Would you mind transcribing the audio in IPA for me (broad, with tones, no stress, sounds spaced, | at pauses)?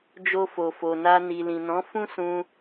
d͡ʒ o˧ f o˨ f o˨ n a˧ n i˨ l ĩ˨ n ɔ̃˨˦ f ũ˦ s ũ˧